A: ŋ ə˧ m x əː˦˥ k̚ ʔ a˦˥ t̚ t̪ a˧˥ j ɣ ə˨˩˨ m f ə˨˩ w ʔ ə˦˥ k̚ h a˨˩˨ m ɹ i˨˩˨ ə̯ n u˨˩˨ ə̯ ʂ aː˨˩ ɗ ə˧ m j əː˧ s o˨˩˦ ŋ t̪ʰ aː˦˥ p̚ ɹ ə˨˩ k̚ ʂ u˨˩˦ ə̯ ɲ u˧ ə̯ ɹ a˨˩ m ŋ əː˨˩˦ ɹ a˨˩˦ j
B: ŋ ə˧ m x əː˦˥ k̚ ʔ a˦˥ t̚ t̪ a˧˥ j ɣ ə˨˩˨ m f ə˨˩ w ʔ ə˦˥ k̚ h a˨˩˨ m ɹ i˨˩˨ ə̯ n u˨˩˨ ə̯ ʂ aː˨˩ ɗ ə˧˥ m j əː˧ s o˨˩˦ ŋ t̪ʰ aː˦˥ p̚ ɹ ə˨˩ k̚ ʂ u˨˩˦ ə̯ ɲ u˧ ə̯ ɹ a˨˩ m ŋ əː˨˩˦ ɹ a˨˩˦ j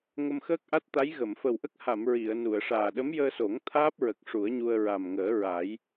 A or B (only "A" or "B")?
B